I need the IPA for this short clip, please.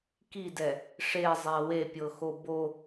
k i d ɛ | ʂ e zˤ ɛ w e pʲ ɤ x o b o

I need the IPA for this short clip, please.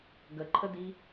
ɡ ə ǃʰ ə d i

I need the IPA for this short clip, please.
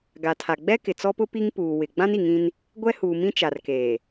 ɡ a˨ tʰ a˨ ɡ͡b ɛ˦ k ɪ˨ t͡s ɔ˦ p ʊ˦ p i˦ ŋ p uː˨ w ɪ˨ ɡ͡b ã˦ n i˨ ŋ ĩ˦ n | ɡʷ ɛ˦ h uː˨ m ĩ˦ t͡ʃ a˨ r k eː˨

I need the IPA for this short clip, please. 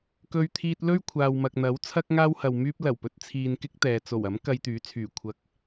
k ɵ˧ ɥ t̪ʰ iː˧ t̚ l ɵ˥ ɥ kʷʰ aː˨ w m ɐ˨ k̚ n̪ ɐ˨˥ w t͡sʰ ɐ˥ k̚ ŋ aː˥ w h ɐ˨ w m yː˧ p̚ l ɐ˨˩ w p ɵ˨ t̚ t͡sʰ iː˨ n k ɪ˥ k̚ t̪ ɛː˨ t͡s o˨˩ w ɐ˨˥ m k ɐ˧ j t̪ yː˨˥ t͡sʰ yː˨˩ kʷʰ ɐ˧ k̚

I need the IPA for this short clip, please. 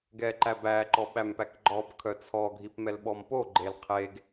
ɡ ɛ ǃ æ b æ ǃ ɔ ɓ æ m p æ k ɡ͡ǃ ɔ b kʰ œ t͡sʰ ɔ ɡʱ i p m ɛ l ɓ ɔ m p o ɡ͡ǃ e l qʰ e ɡ

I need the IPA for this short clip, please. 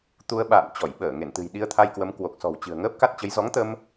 t̪ u˧ ə̯ ɓ a̰ː˧˨ n t͡ɕ ɔ˧˩ j ɓ əː˧˩ ŋ e˧˩ n t̪ ɨ̤˨˩ j ɗ i˧ ə̯ t̪ʰ a˧ j k w ə˨˦ m k w o˨˩ k̚ s ɔ̤˨˩ w t͡ɕ ɨ̤˨˩ ə̯ ŋ əː˦˥ p̚ k a˦˥ t̚ t͡ɕ ə˨˦ j z ɔ˨˦ ŋ t̪ ə˧ m

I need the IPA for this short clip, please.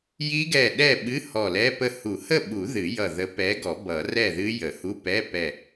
j i˦˥ ɡ ɛ˧˩ ɗ ɛ˥˨ ɓ ɨ˧˥˧ h ɔ˧˩ l ɛ˧˥˧ p ə˧˩ h u˨˩˦ h ə˥˨ ɓ u˨˩˦ ð ɨ˨˩˦ j ʌ˧˩ ð ə˨˥ p ɛ˨˥ ɡ ɔ˨˩˦ b ʌ˨˩˦ r ɛ˥˨ ð ɨ˦˥ j ə˨˩˦ h u˧˥˧ p ɛ˧˥˧ p ɛ˧˩

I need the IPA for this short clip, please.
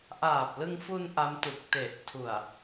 ʔ aː˨˩ p̚ l ɯ˧ ŋ f u˧ n ʔ a˦˥ m t u˨˩ k̚ t e˨˩ ʔ tʰ u˨˩ a̯

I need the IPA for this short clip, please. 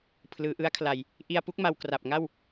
pʰ l ɯː˩˦ ʔ ɯ˦˥ a̯ kʰ l a˨˩ j | ʔ i˧ a̯ p u˦˥ k̚ m a˧ w k r a˨˩ p̚ ŋ a˥˩ w

